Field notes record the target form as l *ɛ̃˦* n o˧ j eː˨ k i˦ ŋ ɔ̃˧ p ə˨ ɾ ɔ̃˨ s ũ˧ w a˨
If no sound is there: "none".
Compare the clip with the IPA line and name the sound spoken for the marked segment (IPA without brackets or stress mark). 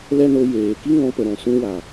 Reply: ɛ˦